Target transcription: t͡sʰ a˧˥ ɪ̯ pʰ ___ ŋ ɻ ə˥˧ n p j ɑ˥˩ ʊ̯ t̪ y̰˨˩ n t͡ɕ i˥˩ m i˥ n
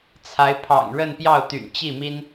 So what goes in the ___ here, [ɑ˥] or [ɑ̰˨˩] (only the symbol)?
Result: ɑ̰˨˩